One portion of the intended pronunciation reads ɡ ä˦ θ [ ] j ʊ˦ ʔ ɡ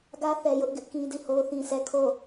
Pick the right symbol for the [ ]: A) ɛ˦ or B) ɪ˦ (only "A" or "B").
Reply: A